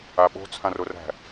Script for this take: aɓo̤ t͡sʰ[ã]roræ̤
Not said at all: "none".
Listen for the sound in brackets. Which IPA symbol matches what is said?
ã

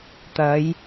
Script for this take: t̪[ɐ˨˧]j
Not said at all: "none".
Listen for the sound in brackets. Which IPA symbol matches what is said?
ɐ˨˧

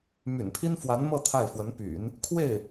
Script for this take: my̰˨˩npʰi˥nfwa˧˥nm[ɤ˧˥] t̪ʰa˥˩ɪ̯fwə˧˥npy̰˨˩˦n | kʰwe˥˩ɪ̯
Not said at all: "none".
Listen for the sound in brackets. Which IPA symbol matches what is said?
ɤ˥˧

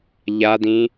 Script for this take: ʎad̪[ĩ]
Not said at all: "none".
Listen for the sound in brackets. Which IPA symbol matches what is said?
ĩ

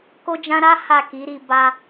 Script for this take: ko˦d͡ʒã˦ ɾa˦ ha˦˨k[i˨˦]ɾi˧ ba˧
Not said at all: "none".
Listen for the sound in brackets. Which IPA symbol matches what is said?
i˨˦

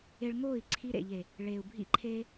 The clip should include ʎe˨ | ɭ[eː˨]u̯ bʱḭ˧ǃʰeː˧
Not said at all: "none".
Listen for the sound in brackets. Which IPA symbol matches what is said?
eː˨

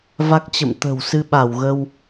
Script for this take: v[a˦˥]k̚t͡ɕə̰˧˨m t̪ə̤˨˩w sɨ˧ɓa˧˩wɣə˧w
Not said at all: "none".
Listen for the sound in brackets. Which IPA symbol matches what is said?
a˦˥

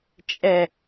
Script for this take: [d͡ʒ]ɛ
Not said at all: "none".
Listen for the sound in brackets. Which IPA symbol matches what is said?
t͡ʃʼ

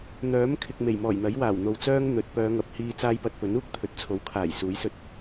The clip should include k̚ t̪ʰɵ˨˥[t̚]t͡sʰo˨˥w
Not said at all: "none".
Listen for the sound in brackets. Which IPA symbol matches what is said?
t̚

